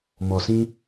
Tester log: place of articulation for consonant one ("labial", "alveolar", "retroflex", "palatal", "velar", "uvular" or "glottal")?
labial